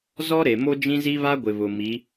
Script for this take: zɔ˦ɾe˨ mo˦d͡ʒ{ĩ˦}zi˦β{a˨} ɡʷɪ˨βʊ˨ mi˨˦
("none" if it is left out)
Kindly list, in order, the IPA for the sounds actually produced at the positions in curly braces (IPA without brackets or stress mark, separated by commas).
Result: ĩ˦, a˦